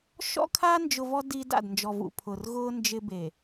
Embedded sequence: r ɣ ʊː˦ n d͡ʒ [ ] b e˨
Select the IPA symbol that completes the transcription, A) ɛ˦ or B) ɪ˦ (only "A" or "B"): B